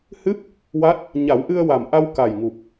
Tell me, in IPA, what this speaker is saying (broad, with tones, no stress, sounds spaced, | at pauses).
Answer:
h ɨ˦˥ p̚ | w a˦˥ t̚ | ɲ a˨˩˦ w ʔ ɨ˧ ə̯ w a˨˩ m ʔ a˧ w k a˨˩ j ŋ u˨˩ p̚